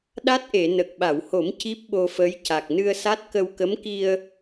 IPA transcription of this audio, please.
ɗ a˦˥ t̚ ʔ e˨˩˨ n ə˨˩ k̚ ɓ a˨˩˨ w h o˨˩˦ m c i˦˥ p̚ ɓ o˧ f ə˧˥ j c a˨˩ k̚ n ɨ˧ ə̯ s a˦˥ t̚ k ə˧ w k ə˧˥ m k i˧ ə̯

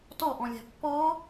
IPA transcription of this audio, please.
t ɔ ʔ ɔ̃ lʲ æ̤ pː ɔ

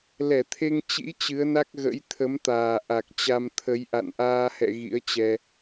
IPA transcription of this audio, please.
l ɛ˧˩ t̪ʰ e˧ ŋ t͡ɕ ḭ˧˥ t͡ɕ ɨ˨˦ ə̯ n a˦˥ k̚ ɣ ə̰˧˥ j t̪ʰ ə˨˦ m t̪ aː˨˩ ʔ a˨˩ k̚ t͡ɕ a˧ m t̪ʰ ə˨˦ j ʔ a̰˧˨ n ʔ aː˧ h ɛ̰˧˨ ɣ ḭ˧˥ ə̯ t͡ɕ ɛ˧

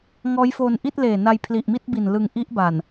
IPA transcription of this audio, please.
ŋ ɔː˦˥ j f oː˧ n ʔ i˥˩ t̚ l eː˨˩ n a˧ j pʰ l i˨˩ ʔ m i˥˩ t̚ b i˨˩ n l ɯ˧ ŋ ʔ i˦˥ ʔ b a˨˩ n

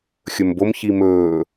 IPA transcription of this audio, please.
xʲ ɵ m b o m ç i m ɵː

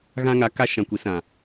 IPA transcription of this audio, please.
ɣ ã˦ ŋ a˨˦ k a˦ ʃ ã˧ kʷ i˨˦ s ã˨

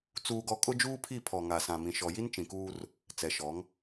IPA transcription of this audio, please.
t͡s uː˦ ɡ ɔ˦ kʼ ʊ˦ d͡ʒ uː˦ pʰ i˦˨ pʰ ɔ˨ ŋ a˨ s ã˨ m ĩ˨ ʃ ɔ˨ j i˦ n t͡ʃ ĩ˨ k uː˦ r | t͡s ɛ˨ ʃ ɔ˨˦ ŋ

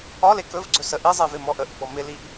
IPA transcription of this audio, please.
ɒ l e k ɵ v ɡ͡ǀ ɵ s ə ʔ i zˤ i v ɪ m ɔ ʔ ə ʔ ɡ͡b ɔ m ɪ l i ʔ

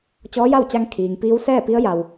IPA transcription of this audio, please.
t͡ɕ ɔː˧˥ j a˥˨ w t͡ɕ a˧ ŋ kʰ iː˩ ŋ p iː˧˥ w s ɛː˥˨ p i˧˥ ə̯ j a˩ w

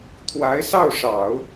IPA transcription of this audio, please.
t̪ʰ w a˧˥ ɪ̯ s ɑ˥˩ ʊ̯ ʂ ɑ˨˩˦ ʊ̯

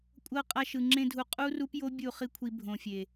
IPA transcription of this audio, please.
kʷʼ ɤ˦ qʼ a˧ ʃ ɯ˨ ŋ͡ǁ ẽ˧ dʱ u˨˦ qʼ u˦ r u˦ p j o˦ bʲ u˦˨ χ i˦ kʷʰ i˧ bʱ õ˨ fʲ e˨

